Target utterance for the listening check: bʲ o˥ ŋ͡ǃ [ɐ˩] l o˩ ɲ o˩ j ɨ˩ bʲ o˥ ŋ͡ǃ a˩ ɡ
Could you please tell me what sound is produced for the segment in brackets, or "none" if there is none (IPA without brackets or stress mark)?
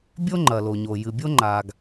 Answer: ɐ˩